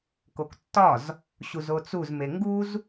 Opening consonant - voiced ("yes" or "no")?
no